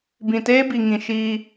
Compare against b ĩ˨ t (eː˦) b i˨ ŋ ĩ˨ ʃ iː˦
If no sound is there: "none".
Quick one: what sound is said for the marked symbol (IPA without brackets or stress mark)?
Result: eː˦